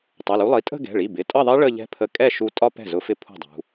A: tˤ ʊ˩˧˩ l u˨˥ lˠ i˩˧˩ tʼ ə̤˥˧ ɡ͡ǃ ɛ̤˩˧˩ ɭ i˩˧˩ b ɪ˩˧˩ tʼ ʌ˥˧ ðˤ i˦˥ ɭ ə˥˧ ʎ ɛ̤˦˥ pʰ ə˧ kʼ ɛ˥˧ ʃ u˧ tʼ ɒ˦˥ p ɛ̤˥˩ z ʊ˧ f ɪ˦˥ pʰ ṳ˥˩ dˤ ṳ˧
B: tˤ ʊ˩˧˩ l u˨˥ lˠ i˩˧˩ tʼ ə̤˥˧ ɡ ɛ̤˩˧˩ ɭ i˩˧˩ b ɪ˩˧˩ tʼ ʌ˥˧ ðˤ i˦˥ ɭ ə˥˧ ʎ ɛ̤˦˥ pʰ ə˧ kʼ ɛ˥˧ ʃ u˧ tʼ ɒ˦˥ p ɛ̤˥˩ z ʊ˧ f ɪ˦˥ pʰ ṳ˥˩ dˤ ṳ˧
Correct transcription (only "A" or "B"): B